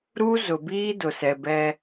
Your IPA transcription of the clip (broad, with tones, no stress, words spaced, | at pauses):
ɾu˦zʊ˨biː˦ dʊ˨sɛ˨bɛ˦